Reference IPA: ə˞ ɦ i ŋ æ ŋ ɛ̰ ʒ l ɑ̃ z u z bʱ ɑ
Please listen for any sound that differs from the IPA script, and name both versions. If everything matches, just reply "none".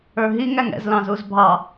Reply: ʒ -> z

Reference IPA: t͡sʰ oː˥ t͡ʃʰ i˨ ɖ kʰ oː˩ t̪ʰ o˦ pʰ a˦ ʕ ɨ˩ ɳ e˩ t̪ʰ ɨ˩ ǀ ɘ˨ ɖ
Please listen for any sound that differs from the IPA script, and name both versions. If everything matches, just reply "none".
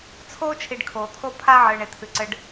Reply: none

